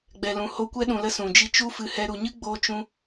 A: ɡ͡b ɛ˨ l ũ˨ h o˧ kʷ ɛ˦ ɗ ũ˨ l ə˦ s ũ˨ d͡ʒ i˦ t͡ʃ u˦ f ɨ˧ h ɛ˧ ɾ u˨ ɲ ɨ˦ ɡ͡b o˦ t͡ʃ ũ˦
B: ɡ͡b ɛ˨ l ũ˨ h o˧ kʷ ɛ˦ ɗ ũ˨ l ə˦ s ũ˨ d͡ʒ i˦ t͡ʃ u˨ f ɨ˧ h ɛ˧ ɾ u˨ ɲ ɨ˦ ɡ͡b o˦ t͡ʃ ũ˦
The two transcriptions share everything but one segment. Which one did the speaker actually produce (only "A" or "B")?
A